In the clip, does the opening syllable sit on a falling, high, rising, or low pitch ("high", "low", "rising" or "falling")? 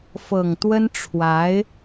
low